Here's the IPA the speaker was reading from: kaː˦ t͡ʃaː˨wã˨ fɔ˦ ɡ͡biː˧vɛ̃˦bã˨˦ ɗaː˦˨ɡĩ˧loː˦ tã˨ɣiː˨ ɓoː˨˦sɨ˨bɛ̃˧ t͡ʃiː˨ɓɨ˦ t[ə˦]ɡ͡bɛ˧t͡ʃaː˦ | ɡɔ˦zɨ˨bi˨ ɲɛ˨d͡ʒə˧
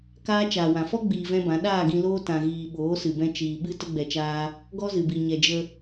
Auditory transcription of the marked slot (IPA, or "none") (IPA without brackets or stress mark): ə˦